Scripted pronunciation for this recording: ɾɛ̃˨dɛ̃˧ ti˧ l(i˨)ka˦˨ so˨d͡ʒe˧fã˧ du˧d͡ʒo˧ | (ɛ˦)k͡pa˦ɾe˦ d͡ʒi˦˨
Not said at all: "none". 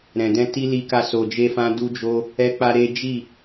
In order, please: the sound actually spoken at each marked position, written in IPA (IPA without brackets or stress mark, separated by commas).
i˦, ɛ˦